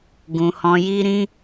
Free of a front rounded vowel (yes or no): yes